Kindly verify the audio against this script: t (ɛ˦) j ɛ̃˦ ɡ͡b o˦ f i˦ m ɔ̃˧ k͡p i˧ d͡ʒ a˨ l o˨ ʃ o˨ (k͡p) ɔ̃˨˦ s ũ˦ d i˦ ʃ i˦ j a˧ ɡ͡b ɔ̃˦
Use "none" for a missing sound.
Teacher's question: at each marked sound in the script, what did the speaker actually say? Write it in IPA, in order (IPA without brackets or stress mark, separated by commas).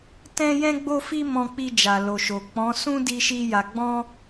ɛ̃˦, k͡p